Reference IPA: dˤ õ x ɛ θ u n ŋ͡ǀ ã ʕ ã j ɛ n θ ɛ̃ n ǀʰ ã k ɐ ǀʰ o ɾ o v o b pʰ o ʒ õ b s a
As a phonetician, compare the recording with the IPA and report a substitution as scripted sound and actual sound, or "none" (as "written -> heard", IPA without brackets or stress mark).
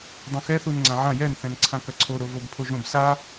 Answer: none